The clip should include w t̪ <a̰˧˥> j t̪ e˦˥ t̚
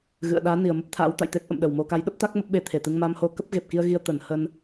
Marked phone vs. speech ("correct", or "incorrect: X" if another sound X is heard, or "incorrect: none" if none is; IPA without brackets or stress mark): incorrect: a̰˧˨